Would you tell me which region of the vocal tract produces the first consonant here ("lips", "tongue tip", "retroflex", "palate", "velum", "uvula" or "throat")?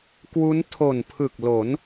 velum